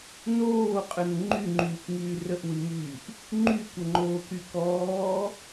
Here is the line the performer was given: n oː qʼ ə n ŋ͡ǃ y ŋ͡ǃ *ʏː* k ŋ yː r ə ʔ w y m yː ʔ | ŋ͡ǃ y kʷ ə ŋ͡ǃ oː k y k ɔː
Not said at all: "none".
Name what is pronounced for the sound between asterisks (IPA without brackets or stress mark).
yː